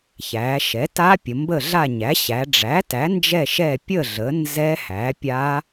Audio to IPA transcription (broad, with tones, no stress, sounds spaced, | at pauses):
ç æ˩˧ ʃ ɛ˩˥ t a˦˥ pʲ ə˩˧ m b ə˦˨ ɮ a˦˨ ɲ æ˩˥ ɕ æ˩˧ ɖ͡ʐ æ˩˥ t æ˩˥ n d͡ʒ ɛ˦˨ ʃ ɛ˦˨ pʲ ə˦˨ ɮ ə˩˥ n z ɛ˦˥ h æ˩˥ pʲ a˦˥